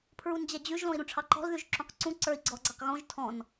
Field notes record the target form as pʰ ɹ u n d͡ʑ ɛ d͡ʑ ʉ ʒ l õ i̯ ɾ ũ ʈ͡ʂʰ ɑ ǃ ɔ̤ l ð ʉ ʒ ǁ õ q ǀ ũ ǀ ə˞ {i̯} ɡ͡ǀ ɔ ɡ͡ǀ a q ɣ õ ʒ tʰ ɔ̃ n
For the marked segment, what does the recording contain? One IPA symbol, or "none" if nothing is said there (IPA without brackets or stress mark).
i̯